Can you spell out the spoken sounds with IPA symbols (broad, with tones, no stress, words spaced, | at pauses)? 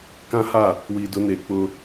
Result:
kã˦ha˦˨ | wiː˨dʊ˨˦neː˨ k͡pʊ˦